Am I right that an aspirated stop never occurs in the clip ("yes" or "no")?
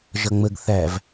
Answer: yes